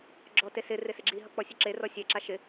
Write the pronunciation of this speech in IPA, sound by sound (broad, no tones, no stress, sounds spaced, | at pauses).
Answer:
ɡ͡ǁ ɔ t e s ɪ r ɪ s ɪ ɡ͡ǁ i ɦ ʌ k͡p ɔ sʲ ʊ ǁ e r ɔ sʲ ɛ ǁ a ʃ ɪ